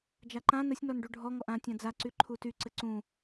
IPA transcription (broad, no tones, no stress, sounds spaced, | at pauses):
d͡ʒ a ǃ ã n ə sʲ n ɔ n ɖ u ɖʱ ɔ ŋ ɔ ʔ ã tʲ ã d͡z a ǀ y ǃʰ u t y ǀ ɘ ǀ ũ